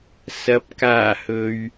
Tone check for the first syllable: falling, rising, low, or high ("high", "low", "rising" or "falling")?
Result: low